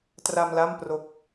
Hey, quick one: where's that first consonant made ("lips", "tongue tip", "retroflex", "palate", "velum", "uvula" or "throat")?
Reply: tongue tip